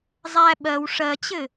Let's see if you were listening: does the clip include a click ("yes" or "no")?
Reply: no